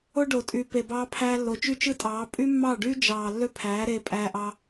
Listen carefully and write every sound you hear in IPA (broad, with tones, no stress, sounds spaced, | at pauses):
o˦ ɖ o˨ tʼ y˨ p e˨ b ɑː˧ pʰ æː˧ lː o˨ t͡ʃ y˦ t͡ʃ ɯ˦ tʼ ɑː˨˦ pʼ y˦ mː ɑ˦˨ ɖ yː˦ d͡ʒ ɑː˨ lː ø˦ pʰ æː˨˦ ɾ eː˧ pʼ æː˧ ʔ ɑ˧